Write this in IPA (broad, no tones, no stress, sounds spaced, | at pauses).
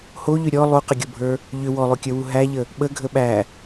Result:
h o ʎ ʏ ɾʲ ɔ lˠ u q ə ɡʲ o bʱ ə˞ | ʎ ʏ w ɔ lˠ o kʲ ə˞ w u ɦ æ ʎ ə | ɓ ə ɡʱ ə ɓ æ